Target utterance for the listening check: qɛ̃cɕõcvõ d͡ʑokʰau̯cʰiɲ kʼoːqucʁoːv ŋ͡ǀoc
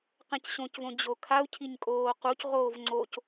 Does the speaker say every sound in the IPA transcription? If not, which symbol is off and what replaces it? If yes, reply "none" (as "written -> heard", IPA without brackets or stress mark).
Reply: none